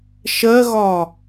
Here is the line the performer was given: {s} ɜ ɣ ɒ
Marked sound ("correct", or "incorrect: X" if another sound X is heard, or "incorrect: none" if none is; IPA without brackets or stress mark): incorrect: ʃ